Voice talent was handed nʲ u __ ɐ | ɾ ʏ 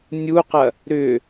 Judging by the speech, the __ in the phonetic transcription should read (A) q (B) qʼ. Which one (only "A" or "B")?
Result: A